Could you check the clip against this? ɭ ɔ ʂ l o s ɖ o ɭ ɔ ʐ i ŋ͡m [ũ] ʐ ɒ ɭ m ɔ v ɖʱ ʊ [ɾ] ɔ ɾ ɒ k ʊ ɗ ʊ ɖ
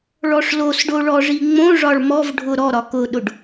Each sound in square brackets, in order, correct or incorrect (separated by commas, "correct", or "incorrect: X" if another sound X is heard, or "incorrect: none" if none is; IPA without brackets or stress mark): incorrect: õ, correct